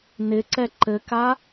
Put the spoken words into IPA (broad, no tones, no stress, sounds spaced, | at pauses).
n ɪ ǀ ɛ ǃ ɘ k a